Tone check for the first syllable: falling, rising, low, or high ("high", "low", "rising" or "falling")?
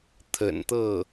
low